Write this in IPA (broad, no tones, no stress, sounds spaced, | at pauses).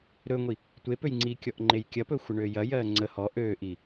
ɾ ɵ ŋʷ i | tʷ e p ø j ŋ͡ǀ i kʲ ɔ ʔ ŋ͡ǃ e j kʲ ɐ p ɵ xʷ ə ɳ øː j ɐ j ɜː ŋ͡ǀ ə h ɔ ʔ øː ʔ i